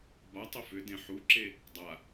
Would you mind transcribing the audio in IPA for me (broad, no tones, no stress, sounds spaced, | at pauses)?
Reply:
b a tˤ ʏ f ʏ d ẽ ħ u ǁ e | dˤ a